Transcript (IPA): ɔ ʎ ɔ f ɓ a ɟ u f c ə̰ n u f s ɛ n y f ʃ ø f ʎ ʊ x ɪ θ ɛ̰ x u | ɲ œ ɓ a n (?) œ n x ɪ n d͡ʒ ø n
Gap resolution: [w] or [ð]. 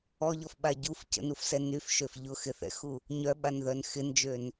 ð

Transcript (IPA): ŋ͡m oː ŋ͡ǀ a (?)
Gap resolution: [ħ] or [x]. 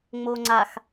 x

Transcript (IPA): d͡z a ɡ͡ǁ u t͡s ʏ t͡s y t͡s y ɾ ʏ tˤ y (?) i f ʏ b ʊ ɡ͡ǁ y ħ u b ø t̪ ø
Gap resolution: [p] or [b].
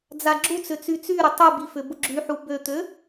b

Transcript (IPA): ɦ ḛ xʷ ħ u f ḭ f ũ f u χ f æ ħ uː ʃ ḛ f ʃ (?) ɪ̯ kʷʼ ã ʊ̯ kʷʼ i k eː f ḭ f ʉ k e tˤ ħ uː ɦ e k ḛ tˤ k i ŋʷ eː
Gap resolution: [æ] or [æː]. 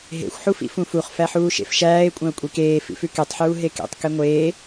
æː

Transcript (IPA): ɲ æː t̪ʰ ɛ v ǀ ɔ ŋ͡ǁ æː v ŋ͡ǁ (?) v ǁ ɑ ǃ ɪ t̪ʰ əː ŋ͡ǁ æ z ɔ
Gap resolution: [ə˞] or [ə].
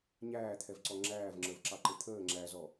ə˞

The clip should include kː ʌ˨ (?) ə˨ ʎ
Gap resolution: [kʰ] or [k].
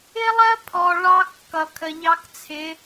kʰ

